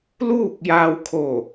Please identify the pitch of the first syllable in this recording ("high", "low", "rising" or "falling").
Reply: falling